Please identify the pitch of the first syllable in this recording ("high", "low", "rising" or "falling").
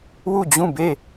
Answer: falling